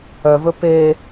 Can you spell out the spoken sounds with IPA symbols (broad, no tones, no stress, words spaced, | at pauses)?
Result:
œvɵ peː